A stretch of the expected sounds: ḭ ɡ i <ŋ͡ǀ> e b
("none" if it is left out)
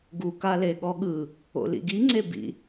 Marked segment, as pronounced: ŋ͡ǀ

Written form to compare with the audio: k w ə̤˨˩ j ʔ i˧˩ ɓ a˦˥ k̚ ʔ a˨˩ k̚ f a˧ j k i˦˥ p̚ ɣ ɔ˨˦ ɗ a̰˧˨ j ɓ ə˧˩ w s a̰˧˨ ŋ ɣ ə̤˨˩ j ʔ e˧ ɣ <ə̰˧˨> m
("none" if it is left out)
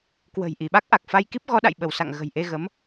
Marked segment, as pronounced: ə˨˦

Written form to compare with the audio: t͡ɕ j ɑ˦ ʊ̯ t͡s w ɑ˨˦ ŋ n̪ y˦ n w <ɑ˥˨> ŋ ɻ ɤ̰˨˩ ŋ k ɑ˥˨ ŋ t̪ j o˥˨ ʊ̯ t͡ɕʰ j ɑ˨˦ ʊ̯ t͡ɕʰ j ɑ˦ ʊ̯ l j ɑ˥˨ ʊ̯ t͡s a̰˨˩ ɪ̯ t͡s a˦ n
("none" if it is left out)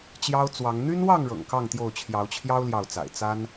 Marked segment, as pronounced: ɑ˥˨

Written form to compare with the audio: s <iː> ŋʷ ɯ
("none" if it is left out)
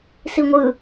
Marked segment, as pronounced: i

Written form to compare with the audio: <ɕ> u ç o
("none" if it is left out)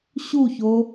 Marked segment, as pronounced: ɕ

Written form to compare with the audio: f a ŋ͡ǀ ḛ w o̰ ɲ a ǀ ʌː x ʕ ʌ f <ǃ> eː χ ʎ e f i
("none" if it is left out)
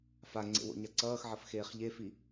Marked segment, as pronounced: x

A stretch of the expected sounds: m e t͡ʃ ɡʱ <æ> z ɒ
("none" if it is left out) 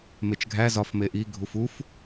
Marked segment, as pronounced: æ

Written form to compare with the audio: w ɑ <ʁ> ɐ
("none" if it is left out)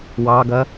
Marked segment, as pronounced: ɡ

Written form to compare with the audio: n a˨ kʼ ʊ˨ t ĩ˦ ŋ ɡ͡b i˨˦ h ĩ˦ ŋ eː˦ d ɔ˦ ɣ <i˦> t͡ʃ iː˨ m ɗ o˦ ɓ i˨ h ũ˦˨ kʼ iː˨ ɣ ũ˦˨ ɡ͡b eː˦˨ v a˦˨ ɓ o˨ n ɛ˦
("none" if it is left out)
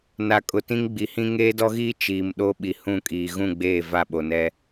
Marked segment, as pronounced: iː˦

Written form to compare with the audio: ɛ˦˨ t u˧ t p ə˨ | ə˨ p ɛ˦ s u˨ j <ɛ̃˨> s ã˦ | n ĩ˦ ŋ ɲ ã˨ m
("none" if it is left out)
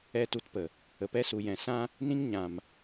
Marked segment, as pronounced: ɛ̃˨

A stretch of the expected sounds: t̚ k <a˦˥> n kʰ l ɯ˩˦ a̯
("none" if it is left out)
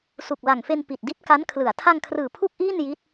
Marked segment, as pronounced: a˦˥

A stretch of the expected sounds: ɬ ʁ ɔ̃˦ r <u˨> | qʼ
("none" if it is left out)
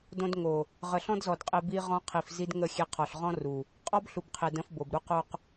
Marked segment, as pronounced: u˨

